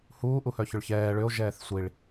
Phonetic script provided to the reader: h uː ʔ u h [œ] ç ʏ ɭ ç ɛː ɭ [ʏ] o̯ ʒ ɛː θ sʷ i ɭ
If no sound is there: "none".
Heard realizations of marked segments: œ, ʏ

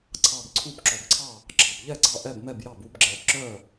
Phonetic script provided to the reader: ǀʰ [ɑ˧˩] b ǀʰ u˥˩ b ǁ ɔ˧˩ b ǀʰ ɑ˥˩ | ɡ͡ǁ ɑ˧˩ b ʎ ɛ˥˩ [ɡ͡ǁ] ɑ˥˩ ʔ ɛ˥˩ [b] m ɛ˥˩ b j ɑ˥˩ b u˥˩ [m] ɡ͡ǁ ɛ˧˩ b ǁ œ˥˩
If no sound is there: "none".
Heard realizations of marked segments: ɑ˧˩, ɡ͡ǀ, b, b

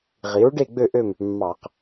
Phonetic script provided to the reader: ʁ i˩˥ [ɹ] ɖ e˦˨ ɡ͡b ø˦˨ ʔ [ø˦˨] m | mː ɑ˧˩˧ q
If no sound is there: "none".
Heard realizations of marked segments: ɹ, ø˦˨

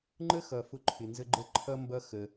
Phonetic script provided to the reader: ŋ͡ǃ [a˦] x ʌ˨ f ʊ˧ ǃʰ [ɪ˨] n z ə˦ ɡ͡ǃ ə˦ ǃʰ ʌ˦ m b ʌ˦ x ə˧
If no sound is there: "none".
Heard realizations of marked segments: ə˦, ɪ˨

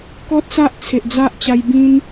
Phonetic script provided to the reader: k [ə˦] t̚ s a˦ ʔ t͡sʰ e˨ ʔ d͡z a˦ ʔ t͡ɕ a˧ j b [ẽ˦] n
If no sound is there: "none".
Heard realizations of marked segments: ɔ˦, ĩ˦

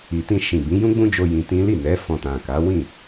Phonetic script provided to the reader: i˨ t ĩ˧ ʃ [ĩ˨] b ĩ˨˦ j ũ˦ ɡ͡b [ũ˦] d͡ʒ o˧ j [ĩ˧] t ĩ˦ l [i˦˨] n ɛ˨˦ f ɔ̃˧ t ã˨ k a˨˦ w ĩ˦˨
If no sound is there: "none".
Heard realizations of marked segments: ĩ˨, ũ˦, ĩ˧, i˦˨

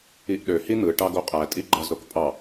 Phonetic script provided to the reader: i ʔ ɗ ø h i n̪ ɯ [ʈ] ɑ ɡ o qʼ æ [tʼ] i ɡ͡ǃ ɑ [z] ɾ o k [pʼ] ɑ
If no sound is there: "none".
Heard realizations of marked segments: ʈ, tʼ, z, pʼ

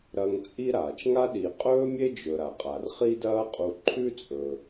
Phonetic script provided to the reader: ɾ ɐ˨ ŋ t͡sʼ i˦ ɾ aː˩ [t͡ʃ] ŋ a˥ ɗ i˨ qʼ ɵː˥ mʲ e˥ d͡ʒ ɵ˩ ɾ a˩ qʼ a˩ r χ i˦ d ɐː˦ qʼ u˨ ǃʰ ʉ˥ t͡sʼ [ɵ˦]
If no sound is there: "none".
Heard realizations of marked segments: t͡ʃ, ɵ˩

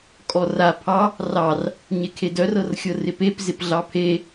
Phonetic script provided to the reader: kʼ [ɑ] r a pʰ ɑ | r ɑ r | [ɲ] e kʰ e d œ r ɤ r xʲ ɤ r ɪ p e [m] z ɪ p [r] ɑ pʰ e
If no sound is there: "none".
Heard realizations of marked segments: ɔ, ɲ, p, ɮ

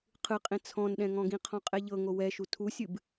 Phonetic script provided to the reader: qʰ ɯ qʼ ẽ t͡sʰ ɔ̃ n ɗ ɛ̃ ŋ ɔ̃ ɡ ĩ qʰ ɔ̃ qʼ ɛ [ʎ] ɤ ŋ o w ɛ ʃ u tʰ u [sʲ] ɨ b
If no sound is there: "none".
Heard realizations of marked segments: ʎ, sʲ

